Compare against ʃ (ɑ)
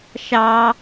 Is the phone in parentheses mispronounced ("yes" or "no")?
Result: no